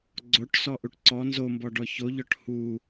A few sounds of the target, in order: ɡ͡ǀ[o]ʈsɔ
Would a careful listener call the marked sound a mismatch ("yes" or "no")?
no